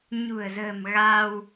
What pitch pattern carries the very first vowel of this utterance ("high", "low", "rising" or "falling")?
low